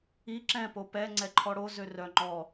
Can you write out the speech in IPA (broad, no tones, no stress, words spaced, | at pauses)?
i ǁɛ̃po pɛ ŋ͡ǀɛǃʰɔɽo zørœ ŋ͡ǃɔ